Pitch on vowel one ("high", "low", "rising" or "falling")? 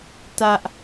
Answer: high